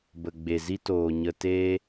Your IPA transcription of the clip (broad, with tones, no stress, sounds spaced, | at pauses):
b ə˨ ɡ͡b e˨ z i˦ t oː˨ ɲ ə˧ t e˧